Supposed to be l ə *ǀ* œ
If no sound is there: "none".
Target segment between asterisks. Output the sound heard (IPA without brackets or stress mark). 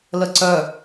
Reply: ǀ